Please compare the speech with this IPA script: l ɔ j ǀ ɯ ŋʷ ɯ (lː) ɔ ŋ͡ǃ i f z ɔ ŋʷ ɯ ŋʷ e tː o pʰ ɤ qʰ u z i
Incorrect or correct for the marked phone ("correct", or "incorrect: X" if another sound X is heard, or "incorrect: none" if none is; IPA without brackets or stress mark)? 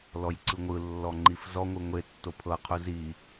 correct